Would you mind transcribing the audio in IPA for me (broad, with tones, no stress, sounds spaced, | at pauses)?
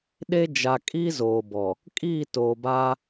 ɗ e˦ d͡ʒ a˨ kʼ i˦ z oː˨ b ɔ˨ | kʼ iː˦˨ t oː˨ b aː˦